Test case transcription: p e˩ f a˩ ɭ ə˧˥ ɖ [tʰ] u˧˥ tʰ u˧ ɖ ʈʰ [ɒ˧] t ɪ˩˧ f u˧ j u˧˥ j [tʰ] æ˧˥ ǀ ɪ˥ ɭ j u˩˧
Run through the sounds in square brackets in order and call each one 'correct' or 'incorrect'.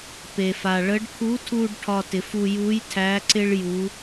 incorrect: kʰ, correct, correct

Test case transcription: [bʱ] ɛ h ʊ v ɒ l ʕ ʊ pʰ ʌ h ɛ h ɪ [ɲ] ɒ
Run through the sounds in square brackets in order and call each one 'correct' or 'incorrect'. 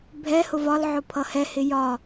correct, incorrect: j

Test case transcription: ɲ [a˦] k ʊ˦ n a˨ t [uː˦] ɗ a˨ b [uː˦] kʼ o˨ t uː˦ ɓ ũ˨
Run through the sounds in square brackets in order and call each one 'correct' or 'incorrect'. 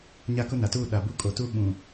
correct, incorrect: uː˦˨, incorrect: u˦

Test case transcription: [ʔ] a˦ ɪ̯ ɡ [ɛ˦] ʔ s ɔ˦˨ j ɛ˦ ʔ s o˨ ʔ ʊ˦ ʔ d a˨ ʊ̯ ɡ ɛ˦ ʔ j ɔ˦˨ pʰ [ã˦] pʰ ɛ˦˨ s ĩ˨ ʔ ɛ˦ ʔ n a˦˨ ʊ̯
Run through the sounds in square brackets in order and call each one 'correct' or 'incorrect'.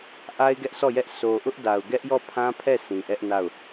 correct, correct, correct

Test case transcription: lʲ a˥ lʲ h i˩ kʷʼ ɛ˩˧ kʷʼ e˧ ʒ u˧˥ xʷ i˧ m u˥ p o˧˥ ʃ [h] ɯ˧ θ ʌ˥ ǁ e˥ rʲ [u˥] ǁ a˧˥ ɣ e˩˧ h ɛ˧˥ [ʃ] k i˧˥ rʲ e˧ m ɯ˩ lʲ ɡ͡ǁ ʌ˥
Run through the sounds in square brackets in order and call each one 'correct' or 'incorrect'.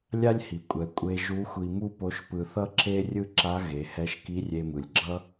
incorrect: p, incorrect: ɯ˥, correct

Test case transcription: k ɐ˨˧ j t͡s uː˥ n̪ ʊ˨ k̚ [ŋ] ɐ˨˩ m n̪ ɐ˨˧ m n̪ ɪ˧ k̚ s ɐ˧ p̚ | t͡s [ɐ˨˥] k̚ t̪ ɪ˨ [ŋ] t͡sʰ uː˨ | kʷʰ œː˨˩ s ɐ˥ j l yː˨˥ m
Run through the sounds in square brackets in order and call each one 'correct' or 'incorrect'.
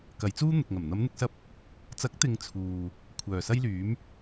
correct, correct, correct

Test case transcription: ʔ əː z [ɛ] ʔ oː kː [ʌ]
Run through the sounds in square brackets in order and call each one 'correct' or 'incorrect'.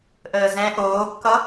incorrect: ɛ̃, correct

